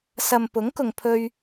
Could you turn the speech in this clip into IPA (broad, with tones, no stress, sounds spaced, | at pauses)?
s ɐ˨ m p ʊ˨˥ ŋ k ʊ˨ ŋ pʰ ɵ˧ ɥ